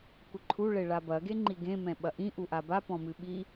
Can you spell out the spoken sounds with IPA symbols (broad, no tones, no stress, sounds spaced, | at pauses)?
kʷ ɘ ǃʰ u ɭ e ɭ a b ɐ ɡ e ŋ͡ǃ i ɡ ẽ m ɛ̃ ɓ ɐ ʔ ĩ ʔ u ʔ a b a p ɔ̃ m ɨ ɓ i